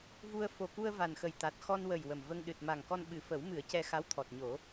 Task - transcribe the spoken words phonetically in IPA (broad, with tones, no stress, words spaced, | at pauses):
vu˧ə̯ fo˨˩ku˧ə̯ va˨˩nxə˨˩jt̪a˨˩t̚ xɔ˧nwə˨˩j wə˨˩mvə˧ŋ ɗɨ˨˩t̚ ma˨˩ŋkɔ˧n ɓɨ˨˩fə˨˩˦wmɨ˨˩˦ə̯ cɛ˧xa˧˥wt̪ʰɔ˨˩t̚ɲo˨˩˦